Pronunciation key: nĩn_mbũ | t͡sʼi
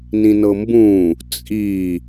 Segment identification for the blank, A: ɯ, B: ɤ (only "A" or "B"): B